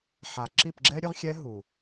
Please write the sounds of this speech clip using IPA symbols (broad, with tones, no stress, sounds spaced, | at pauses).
ħ a˨ ǁ i˦˨ p ɡ͡ǁ ɛ˦ ɾʲ ɵ˦ ʁ xʲ ɛ˦ ɦ u˨